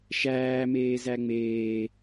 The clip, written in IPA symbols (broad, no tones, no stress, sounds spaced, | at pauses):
ʃ æː m eː z æ ŋ͡m eː